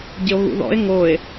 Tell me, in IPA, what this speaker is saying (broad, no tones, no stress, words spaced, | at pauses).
ɟɪo̯ɣṵðɔ̰e̯ ŋoe̯